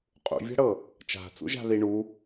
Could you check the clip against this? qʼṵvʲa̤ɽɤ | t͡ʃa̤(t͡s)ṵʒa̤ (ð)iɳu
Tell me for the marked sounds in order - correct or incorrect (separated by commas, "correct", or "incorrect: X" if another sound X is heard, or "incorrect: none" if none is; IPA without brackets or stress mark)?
correct, correct